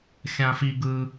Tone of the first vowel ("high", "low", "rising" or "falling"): high